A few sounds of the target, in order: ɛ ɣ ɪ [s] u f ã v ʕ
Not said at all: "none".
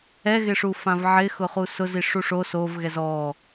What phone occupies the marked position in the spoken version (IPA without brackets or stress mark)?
ʂ